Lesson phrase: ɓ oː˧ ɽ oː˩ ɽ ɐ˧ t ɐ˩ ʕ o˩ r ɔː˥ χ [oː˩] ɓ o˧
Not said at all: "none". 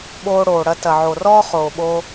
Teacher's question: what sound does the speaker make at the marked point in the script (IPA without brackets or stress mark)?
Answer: oː˩